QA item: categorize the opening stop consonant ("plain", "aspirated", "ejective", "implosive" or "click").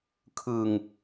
aspirated